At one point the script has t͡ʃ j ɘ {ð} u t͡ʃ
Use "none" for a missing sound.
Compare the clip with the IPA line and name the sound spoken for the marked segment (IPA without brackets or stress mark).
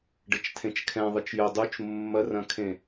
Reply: dˤ